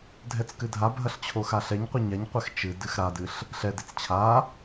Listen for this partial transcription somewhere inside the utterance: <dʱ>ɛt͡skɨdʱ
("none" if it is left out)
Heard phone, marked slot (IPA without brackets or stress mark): dʱ